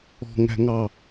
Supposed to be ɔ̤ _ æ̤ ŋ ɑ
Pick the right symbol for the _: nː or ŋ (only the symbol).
ŋ